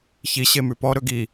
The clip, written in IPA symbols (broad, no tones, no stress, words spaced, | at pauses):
çi ɕemʉpɔ ɾɵɡi